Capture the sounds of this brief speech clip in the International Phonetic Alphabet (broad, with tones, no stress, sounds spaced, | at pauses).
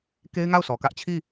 k e˦ ɪ̯ ŋ a˦˨ ʊ̯ sʰ ɔ˨ k ä˦ ʔ t͡ɕʰ i˦˨